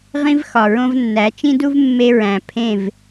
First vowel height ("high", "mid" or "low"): high